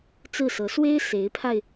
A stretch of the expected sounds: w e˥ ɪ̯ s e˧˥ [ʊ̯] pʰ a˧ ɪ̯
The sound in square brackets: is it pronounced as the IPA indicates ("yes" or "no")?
no